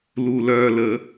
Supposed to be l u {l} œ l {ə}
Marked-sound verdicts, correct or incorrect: correct, correct

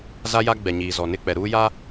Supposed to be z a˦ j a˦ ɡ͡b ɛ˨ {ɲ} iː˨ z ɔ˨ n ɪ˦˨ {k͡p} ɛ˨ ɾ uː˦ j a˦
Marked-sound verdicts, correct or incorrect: correct, correct

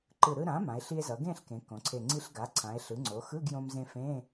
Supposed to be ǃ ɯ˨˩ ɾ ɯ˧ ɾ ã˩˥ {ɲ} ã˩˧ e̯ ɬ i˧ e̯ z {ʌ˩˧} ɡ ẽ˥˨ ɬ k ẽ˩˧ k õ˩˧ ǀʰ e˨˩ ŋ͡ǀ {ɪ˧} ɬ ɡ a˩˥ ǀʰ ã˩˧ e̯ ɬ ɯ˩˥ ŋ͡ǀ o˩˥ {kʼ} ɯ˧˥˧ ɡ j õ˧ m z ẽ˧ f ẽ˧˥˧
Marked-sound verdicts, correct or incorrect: incorrect: m, correct, incorrect: i˧, incorrect: x

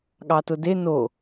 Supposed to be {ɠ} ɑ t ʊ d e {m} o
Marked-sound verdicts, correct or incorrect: correct, incorrect: n

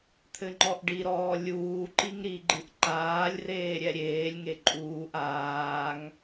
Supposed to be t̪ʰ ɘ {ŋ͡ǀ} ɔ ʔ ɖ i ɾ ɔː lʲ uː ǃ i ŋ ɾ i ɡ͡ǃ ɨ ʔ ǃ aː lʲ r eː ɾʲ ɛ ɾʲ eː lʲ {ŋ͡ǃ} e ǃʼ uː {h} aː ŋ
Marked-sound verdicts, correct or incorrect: incorrect: ŋ͡ǃ, incorrect: ŋ, incorrect: ʔ

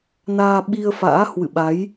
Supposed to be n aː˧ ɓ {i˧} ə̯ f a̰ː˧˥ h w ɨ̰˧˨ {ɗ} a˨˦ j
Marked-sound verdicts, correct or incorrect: correct, incorrect: ɓ

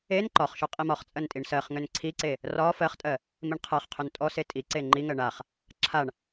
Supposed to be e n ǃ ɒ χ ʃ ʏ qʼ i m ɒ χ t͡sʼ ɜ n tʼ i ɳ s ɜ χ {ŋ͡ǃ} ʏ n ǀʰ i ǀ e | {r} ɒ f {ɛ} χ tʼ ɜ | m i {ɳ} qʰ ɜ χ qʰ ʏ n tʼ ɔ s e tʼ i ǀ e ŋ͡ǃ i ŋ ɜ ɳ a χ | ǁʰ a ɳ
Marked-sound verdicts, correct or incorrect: incorrect: ŋ, correct, incorrect: ɜ, correct

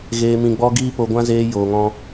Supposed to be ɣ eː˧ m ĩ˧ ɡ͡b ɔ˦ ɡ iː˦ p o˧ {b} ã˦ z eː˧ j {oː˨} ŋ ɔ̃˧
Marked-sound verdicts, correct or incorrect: incorrect: ɡʷ, correct

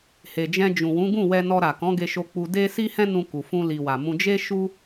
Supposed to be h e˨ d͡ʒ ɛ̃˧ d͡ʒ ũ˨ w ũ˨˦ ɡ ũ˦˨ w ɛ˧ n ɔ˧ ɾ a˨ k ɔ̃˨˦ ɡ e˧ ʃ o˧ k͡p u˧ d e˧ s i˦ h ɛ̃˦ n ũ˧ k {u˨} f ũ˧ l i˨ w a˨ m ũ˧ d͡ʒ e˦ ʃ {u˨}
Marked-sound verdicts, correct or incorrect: correct, incorrect: u˦

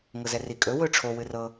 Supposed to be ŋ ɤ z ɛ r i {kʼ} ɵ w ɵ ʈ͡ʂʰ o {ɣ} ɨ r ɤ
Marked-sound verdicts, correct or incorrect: correct, incorrect: w

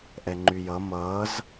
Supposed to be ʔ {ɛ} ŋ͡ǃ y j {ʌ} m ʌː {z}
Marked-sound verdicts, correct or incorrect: correct, correct, correct

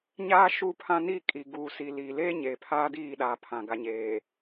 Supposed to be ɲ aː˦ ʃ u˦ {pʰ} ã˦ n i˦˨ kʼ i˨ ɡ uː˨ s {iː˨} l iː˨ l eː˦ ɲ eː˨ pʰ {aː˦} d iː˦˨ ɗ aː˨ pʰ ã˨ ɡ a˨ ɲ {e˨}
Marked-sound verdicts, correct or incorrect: correct, incorrect: i˨, correct, incorrect: eː˨

